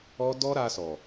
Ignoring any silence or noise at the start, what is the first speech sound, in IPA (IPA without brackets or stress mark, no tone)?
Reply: ɔ